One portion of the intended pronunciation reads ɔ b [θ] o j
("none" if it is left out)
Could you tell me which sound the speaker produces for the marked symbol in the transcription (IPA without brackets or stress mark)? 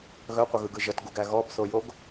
θ